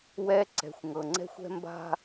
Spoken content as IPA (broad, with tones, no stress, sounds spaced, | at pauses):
w ɛ˦ ǀ ɛ̤˨ xʷ ŋ ɤ˨ ŋ͡ǀ ɛ̤˦ xʷ ɛ̤˦ m b a̤˦